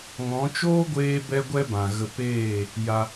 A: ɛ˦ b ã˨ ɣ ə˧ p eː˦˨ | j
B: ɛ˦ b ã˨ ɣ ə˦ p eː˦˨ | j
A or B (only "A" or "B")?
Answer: A